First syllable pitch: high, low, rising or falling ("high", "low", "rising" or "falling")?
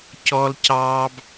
high